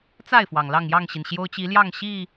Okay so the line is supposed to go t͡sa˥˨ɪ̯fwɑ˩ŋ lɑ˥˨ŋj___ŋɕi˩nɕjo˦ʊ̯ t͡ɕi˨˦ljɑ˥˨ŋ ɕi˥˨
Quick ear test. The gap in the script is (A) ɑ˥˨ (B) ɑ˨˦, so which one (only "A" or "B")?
A